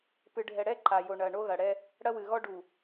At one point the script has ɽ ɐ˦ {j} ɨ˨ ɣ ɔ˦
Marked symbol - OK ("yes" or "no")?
no